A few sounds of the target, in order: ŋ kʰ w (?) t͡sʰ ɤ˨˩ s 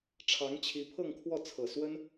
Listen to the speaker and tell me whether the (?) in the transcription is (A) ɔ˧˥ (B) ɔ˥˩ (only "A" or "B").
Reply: B